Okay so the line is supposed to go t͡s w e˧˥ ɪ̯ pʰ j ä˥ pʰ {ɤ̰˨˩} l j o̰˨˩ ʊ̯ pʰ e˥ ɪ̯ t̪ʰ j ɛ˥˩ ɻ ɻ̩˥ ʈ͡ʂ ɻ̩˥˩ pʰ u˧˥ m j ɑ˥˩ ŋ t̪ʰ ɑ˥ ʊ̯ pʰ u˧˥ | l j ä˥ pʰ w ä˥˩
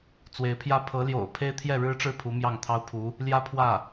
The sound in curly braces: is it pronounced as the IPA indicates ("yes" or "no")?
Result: no